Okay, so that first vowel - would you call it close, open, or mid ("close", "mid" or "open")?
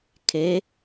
mid